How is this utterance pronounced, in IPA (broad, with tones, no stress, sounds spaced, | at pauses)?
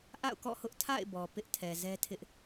ʔ a̰˦˨ ʊ̯ k ɔ̰˦˨ h ʊ˦ ʔ tʰ a̰˦˨ ɪ̯ b ɔ˨ p ɪ˦ ʔ tʰ ɛ˨ z ɛ˦ tʰ ɪ˦ ʔ